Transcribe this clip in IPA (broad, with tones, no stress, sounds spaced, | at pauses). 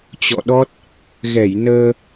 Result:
t͡ɕ ɔ̰˧˨ ɗ ɔ˦˥ t̚ | ɣ ɛ˧˩ j n əː˧